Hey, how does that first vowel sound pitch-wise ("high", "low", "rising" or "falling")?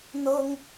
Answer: high